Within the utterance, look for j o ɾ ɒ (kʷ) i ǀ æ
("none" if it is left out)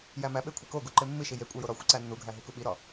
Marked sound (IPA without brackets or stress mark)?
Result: xʷ